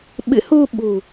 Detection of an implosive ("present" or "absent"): present